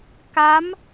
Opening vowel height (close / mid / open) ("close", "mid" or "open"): open